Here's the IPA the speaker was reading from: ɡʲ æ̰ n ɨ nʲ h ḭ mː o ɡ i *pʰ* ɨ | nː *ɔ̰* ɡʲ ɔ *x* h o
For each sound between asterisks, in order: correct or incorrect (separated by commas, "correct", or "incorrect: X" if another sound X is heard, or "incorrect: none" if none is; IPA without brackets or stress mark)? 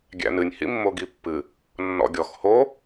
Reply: incorrect: pː, correct, correct